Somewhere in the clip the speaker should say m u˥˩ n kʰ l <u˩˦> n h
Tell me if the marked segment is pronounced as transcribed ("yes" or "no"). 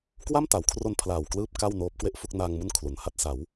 yes